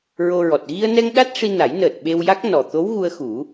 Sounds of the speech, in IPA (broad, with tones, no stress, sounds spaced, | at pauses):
ɹ o˧ ɹ ɔ˨˩ t̚ ɣ i˧ ə̯ n ɛ˧ ŋ ɗ a˦˥ t̚ ʂ i˧ n a˨˩˦ j n əː˨˩ t̚ ɓ e˧ w j a˦˥ k̚ n ɔ˨˩ t̪ o˧˥ w ɣ u˧ ə̯ x u˨˩˦